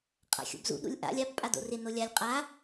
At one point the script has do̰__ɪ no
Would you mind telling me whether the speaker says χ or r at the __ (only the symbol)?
r